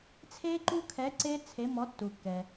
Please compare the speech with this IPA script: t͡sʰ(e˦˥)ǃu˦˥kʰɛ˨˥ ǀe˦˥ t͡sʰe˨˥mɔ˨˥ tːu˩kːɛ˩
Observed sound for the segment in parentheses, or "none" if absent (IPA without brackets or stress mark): e˦˥